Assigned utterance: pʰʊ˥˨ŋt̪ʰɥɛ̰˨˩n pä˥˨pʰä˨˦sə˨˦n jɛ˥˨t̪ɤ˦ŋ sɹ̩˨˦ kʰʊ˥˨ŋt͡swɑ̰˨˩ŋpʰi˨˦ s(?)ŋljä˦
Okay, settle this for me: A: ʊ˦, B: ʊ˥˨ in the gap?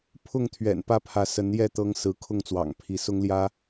A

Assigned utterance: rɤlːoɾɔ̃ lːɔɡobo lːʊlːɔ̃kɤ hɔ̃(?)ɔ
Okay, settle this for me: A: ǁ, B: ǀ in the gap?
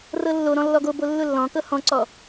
B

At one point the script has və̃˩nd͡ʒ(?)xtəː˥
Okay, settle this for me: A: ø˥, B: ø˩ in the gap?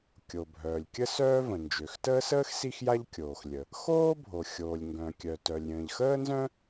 B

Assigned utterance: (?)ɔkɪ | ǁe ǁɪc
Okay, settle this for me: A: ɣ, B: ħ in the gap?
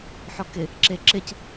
B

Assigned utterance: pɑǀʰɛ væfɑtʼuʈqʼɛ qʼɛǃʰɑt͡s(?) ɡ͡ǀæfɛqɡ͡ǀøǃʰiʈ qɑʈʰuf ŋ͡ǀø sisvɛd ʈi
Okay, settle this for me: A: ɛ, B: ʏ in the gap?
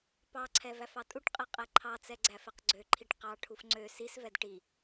A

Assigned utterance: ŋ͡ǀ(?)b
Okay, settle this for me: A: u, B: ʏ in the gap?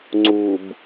A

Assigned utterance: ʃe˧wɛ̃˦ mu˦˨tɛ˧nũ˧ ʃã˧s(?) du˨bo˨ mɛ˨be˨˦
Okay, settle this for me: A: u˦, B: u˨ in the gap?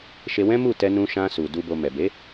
B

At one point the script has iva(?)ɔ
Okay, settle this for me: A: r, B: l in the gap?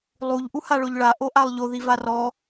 A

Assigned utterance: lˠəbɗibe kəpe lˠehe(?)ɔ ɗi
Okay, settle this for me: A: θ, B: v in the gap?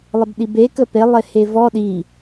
B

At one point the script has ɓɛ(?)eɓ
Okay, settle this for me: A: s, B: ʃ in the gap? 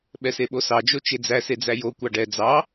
A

